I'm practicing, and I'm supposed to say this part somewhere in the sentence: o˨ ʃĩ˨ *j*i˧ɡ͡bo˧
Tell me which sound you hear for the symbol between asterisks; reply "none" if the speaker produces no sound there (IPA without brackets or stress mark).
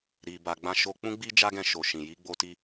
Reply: j